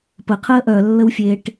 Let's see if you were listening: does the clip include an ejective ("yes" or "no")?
no